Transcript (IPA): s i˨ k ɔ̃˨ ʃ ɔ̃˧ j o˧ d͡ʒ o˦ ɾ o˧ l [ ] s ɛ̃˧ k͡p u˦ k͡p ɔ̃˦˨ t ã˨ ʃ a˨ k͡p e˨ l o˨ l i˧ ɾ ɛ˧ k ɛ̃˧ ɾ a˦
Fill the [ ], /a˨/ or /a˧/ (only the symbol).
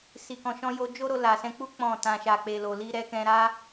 a˨